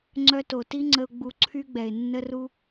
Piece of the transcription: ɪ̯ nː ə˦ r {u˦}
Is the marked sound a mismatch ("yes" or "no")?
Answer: no